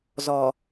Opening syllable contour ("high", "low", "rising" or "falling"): low